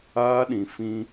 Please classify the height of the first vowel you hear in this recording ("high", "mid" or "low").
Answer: low